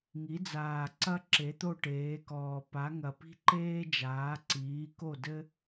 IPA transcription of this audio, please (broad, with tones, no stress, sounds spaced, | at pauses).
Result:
ŋ i˩˥ d͡z aː˨˩ ǀ ɐ˥ ǁ e˩˥ t̪ o˥˩ ʈ eː˩˥ k ɔː˨˩ p a˩˥ ŋ ɐ˨˩ p i̤˥ ǃ eː˥ d͡ʒ aː˩˥ ǀ iː˩˥ k o˥˩ d ɘ˥